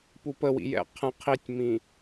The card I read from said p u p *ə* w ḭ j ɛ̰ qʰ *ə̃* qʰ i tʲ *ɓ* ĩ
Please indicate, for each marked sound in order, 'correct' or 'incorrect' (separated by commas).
correct, correct, incorrect